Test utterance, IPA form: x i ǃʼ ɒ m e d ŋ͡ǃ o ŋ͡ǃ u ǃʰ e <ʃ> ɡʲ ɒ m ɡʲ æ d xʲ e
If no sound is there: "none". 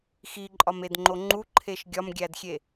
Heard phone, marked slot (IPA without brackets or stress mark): ʃ